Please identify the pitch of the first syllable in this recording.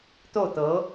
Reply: falling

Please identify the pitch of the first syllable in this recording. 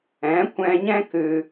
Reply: rising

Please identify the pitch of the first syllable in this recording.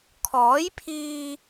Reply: rising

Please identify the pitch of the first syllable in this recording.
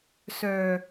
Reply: low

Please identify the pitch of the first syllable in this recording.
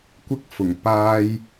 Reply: high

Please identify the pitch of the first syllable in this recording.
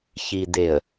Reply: low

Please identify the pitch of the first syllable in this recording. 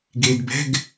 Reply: low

